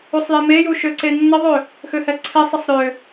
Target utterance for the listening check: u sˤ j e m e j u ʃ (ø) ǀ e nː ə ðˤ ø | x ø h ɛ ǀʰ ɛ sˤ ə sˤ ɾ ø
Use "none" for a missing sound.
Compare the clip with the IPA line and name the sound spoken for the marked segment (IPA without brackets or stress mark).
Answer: ø